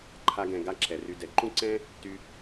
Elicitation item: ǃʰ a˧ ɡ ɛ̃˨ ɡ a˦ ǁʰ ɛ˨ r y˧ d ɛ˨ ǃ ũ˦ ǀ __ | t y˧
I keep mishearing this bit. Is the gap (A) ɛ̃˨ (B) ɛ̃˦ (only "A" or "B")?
B